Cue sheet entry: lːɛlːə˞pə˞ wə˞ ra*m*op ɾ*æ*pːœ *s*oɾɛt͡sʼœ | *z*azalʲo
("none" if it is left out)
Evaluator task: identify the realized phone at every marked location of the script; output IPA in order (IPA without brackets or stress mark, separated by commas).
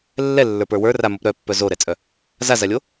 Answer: m, œ, z, z